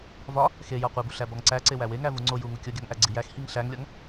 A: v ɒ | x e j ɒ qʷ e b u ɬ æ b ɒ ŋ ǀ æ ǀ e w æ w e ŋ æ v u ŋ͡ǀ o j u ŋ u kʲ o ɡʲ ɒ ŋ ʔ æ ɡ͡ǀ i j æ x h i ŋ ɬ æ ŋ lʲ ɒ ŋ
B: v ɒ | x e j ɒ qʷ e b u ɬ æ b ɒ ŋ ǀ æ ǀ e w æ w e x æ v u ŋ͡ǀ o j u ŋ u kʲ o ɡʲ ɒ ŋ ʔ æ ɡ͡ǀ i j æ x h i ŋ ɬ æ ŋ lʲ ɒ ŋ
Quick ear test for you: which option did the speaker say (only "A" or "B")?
A